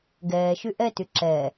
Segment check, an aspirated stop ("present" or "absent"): absent